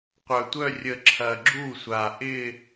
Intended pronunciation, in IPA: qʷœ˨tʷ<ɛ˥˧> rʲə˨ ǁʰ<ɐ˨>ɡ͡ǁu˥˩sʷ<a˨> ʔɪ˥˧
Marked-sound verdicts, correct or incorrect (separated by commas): incorrect, correct, correct